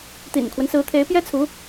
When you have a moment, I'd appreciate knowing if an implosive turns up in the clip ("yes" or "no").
no